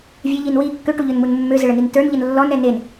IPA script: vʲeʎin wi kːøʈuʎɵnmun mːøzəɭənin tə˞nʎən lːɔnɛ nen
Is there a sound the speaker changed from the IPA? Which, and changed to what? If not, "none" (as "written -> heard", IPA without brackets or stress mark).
none